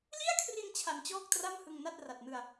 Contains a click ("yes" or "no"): no